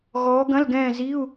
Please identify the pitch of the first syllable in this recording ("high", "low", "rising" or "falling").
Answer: rising